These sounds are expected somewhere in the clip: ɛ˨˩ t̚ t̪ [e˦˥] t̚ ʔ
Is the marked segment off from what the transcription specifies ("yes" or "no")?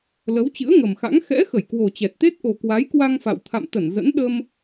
no